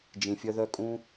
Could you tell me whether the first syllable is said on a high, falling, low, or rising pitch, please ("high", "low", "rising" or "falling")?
low